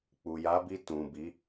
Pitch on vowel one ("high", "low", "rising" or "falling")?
low